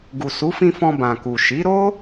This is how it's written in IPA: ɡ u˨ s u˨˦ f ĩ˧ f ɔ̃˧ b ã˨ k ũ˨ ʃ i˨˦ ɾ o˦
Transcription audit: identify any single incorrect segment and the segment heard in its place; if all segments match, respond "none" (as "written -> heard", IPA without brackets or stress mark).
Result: ũ˨ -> u˨